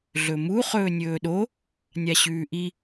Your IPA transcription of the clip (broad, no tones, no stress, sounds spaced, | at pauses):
ɮ ɵ m u χ ɵː nʲ ɵː ɗ o | nʲ a ɕ ʉː ʔ i